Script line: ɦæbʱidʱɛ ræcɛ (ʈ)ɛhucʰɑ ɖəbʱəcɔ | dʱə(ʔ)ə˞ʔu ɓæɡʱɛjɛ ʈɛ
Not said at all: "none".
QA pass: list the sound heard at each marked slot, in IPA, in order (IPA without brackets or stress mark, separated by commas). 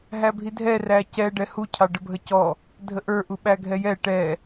ɖ, ʔ